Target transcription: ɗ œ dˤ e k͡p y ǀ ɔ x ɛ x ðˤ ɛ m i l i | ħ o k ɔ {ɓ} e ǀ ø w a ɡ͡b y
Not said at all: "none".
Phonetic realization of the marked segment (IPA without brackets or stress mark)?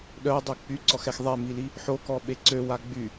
ɓ